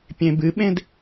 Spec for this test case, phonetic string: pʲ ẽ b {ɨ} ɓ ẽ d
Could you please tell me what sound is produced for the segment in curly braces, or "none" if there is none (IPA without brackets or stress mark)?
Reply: ɨ